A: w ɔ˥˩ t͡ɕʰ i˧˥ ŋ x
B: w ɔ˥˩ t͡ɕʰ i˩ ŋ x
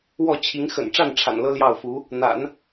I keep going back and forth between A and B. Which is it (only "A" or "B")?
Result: A